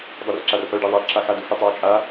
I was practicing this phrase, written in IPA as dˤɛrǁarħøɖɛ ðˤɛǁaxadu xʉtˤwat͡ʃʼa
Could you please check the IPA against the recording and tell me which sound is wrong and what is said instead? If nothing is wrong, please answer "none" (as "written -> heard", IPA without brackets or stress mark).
ʉ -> ø